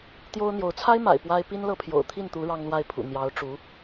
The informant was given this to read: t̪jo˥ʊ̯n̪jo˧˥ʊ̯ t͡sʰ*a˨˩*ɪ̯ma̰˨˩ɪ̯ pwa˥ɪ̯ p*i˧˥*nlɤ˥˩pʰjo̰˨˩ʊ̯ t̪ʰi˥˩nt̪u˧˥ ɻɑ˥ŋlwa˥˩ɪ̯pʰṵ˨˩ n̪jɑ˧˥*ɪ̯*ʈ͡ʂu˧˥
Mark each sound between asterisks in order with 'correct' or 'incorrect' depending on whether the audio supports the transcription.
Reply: incorrect: a˥, incorrect: i˥, incorrect: ʊ̯

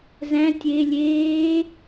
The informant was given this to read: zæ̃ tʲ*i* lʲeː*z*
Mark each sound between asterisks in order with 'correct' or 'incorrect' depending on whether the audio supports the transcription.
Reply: incorrect: e, incorrect: none

